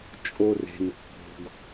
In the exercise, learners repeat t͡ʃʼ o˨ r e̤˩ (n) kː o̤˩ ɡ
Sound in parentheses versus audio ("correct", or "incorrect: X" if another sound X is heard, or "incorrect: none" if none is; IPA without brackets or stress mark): correct